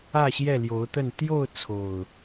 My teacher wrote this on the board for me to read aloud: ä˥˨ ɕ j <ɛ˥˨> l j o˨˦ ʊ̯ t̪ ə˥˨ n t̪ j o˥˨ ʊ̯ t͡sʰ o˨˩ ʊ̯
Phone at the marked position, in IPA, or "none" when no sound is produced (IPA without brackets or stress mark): ɛ˥˨